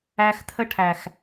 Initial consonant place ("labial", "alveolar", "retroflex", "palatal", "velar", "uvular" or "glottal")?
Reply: velar